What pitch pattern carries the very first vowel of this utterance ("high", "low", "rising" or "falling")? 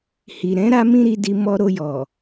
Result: low